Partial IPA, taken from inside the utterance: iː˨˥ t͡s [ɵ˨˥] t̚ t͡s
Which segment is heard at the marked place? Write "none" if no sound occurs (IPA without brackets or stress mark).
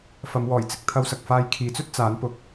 ɵ˥